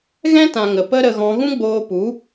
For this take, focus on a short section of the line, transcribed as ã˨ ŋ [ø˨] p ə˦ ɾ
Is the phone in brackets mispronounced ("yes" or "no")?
yes